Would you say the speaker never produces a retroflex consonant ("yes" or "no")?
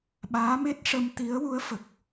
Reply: no